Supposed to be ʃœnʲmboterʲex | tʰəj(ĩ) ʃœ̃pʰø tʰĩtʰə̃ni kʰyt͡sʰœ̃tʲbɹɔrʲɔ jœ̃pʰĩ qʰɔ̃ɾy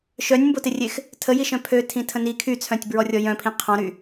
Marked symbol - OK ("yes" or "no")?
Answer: no